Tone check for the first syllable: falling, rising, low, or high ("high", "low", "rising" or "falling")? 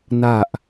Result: low